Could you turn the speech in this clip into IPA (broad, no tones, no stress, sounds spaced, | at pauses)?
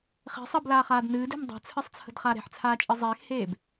χ e̤ sˤ əː b l aː χ aː d n ɨː d e̤ m dˤ a̤ t͡sʰ ɨ sˤ t͡sʰ ə̤ d χ a ɾ e̤ ħ t͡sʰ aː t͡ʃʼ ɨ zˤ eː x h eː b